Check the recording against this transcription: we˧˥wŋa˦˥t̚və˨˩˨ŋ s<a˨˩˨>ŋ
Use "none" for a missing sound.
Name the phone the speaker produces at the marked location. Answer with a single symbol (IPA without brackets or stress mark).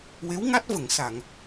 a˨˩˨